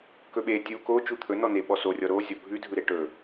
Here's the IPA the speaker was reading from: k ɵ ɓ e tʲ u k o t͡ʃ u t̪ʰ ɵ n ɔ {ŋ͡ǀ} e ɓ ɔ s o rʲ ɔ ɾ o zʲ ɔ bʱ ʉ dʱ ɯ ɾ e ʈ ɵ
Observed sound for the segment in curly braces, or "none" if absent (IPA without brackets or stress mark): n